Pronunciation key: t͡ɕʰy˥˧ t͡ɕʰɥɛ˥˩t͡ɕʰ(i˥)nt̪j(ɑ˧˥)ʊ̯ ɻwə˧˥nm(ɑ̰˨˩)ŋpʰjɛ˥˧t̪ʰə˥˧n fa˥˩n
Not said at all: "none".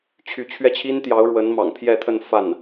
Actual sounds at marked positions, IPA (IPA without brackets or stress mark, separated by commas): i˥, ɑ˧˥, ɑ̰˨˩